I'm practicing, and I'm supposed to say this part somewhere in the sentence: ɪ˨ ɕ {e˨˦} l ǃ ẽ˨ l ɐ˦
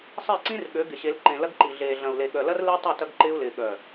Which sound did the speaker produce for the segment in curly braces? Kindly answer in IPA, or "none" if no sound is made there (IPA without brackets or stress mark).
e˨˦